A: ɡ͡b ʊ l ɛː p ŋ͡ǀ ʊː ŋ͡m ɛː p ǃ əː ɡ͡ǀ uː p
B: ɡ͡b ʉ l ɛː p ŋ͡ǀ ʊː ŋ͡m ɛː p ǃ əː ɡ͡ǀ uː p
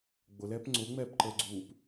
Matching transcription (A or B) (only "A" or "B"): A